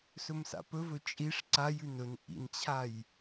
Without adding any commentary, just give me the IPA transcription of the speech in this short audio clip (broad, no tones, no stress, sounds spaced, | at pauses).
s ɵ m s a̰ p ɵ v ɵ t͡ʃʼ i ʂ ǀ a j ʉ n ɵ n ʔ ḭ n t͡ɕʰ a j